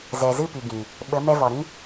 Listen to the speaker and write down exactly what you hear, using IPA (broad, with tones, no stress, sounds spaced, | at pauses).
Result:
z ɛ˨ z ɨ˦˨ p i˨ ɡ ĩ˨ | ɓ ə˨˦ m ɛ˧ v ɔ˨ ɾ ĩ˦